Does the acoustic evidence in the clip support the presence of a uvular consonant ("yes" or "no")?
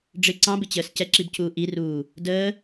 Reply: no